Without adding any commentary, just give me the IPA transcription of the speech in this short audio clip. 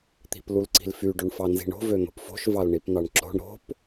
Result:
t̪ i̤ p l u l ǀ i̤ l f y ɖ o ɳ f ɑ n z i̤ ɳ o̤ v ø n̪ o̤ p f o̤ ʃ v ɑ l ɳ i p n̪ ɑ ɳ ǁ o̤ ɳ ɾ o̤ p

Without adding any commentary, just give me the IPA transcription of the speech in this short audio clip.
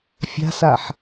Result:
fʲ a̤ s a ħ

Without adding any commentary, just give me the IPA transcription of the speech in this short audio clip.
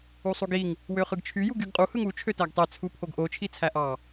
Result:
u sˤ u ɡ i ŋ | w ø χ ɯ ɡ t͡ʃʰ y j u ɡ y ɡ qʼ u h ɯ ŋ u t͡ʃʰ ø t æ ɡ tˤ e t͡sʰ u pʰ o ɡ ʔ o t͡ʃʰ i t͡sʰ æ ʔ ɑ

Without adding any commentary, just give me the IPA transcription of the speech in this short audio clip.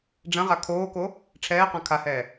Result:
ɖ͡ʐ ɐ̃ ʁ a kʰ oː k o | ʈ͡ʂʰ ɛː q ã kʰ a h ɛː

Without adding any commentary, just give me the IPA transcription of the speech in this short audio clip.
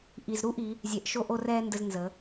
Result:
ʔ i˩ z ɾ u˥ ʔ i˩˧ | zʲ ɛ˩˧ ʔ ʃ o˧ ʔ o˧ r ɛː˧ n d ə˧ z n z ə˩˧

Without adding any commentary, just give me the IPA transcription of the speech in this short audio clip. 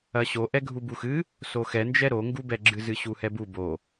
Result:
ɐ ɕ o ʔ ɛ ɡʱ u b u x ɨ | s o x ɛ n d͡ʒ ɛ ɾ o ŋ ɡ u b ɛ ɡ͡ǁ ɨ z ɨ ɕ u h ɛ b u b o

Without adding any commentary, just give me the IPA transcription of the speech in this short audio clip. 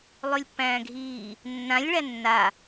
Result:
lˠ ʉ lʲ pː æ̃ː ɡʱ iː | nː ã lʲ ɭ æ nː a

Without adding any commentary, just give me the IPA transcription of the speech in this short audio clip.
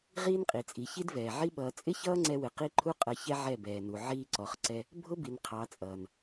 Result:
ʁ iː˦ n qʼ i˨ t͡sʼ i˨ ç i˦ d v ɛː˨ ʕ i˦ ɓ ʌː˧ t͡sʼ ɪ˦ ç ʌː˦ ŋ͡ǀ ɛ˧ w ɪ˨ q i˦ ǃʰ u˦ qʼ ʌ˧ ç ɛ˦ ʕ ɛ˦˨ b ɛː˨ n u˨ ʕ iː˦ ǀ ɔ˧ χ ǀ ɛ˦ | bʱ ʊ˦ b i˨ n qʰ ɑ˨˦ t͡sʼ ʌː˨ n

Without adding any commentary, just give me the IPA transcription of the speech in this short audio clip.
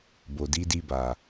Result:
b o˨ d i˨˦ d i˧ b a˨

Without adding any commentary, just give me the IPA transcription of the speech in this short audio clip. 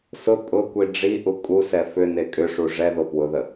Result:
s ʊ pʼ ʊ kʷ i ɖ͡ʐ i ʔ u kʼ u s ɛ f ʏ n e kʼ ʏ ʂ u ʐ ɛ ð o p w ʊ ð ə

